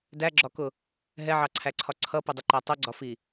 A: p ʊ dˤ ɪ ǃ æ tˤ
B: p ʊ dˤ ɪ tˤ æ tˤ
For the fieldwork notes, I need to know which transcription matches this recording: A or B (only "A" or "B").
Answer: A